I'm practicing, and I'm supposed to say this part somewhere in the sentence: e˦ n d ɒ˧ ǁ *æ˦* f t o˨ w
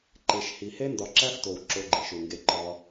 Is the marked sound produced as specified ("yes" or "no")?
yes